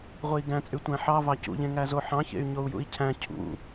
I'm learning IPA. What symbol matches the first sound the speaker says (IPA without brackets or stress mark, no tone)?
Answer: ʁʷ